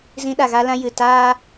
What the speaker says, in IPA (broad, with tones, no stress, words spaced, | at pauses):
zĩ˧ɗa˨ɣa˧lã˧ jɨ˨ taː˦